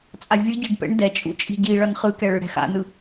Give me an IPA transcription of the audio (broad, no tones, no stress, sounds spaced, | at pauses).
t͡sʼ a vʲ ɯ ɟ i ɖ p ɛ̰ ɳ d ɛ t͡ʃʼ ṵ t͡ʃʼ i̤ ɟ i ɭ ʌ n χ ɯ k ɛ ɭ ɯ ɽ ɛ̤ x a̰ n ɯ